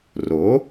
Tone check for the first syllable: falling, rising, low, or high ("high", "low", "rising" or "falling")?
rising